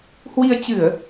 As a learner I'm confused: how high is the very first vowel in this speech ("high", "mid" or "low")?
high